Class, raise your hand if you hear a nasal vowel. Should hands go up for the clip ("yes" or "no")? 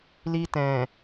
yes